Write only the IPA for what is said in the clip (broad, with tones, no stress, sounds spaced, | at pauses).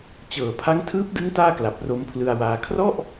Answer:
t͡ɕ ɤː˩˦ pʰ a˦˥ ŋ tʰ ɯː˦˥ p̚ d ɯ˦˥ ŋ t aː˥˩ k l a˨˩ p̚ r o˦˥ m pʰ l ɯ˧ a̯ w aː˧ kʰ r ɔ˥˩ ʔ